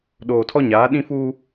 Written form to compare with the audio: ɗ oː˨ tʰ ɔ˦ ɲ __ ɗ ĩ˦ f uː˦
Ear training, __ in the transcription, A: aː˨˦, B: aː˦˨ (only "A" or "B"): A